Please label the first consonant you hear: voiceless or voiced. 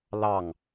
voiced